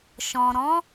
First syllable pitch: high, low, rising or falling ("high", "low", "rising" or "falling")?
low